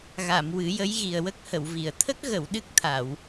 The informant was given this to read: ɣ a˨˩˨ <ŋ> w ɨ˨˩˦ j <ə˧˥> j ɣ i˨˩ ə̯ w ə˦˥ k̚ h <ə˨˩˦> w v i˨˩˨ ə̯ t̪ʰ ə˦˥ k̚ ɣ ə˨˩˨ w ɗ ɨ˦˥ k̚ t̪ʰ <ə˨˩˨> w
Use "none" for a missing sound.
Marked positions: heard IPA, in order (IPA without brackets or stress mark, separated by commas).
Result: m, ə˧˥, ə˨˩˨, a˨˩˨